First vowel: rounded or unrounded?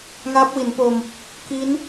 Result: unrounded